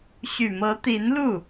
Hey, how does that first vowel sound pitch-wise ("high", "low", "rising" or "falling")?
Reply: low